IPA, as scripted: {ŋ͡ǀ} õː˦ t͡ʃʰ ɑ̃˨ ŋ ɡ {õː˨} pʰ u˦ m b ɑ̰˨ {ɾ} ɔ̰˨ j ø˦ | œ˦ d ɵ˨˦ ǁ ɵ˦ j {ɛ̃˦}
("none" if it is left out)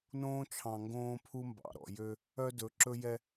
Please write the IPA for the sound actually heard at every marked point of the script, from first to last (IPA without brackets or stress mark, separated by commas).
n, õː˦, ɾ, ɛ˦